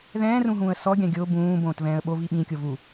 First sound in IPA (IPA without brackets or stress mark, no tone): ð